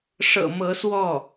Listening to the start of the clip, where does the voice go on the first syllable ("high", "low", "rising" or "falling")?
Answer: low